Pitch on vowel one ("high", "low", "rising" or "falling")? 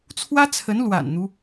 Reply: high